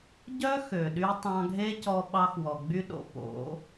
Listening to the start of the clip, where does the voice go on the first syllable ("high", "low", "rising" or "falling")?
high